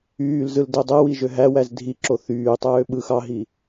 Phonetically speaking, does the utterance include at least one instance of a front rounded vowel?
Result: yes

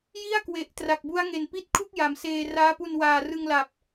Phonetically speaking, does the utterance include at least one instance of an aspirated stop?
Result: yes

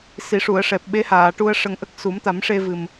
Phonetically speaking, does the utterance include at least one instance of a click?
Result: no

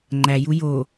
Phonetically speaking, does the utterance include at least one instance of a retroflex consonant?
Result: no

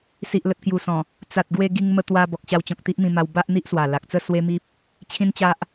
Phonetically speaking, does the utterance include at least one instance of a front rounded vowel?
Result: no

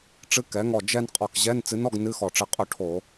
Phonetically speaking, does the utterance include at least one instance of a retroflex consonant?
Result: yes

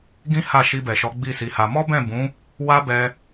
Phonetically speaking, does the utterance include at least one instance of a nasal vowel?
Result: yes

